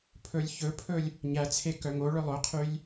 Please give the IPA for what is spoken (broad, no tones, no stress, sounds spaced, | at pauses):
pʰ ɵ lʲ ç ɵ pʰ ɵ lʲ | ɲ æ t͡sʰ e k œ ŋ o ɭ œ lˠ ɵ qʰ y lʲ